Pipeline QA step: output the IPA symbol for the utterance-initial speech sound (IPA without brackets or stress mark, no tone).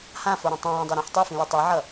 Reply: h